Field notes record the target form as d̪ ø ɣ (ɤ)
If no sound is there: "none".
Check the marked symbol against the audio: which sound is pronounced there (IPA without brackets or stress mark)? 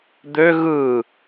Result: ɯ